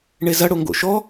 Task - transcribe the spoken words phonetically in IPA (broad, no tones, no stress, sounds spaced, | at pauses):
ɳ e z ɐ ɽ o ŋ ɡ o̰ ʃ ɔ